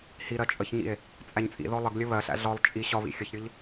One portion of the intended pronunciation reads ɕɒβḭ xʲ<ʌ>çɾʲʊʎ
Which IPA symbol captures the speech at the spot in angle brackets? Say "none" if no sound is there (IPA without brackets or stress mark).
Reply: ʌ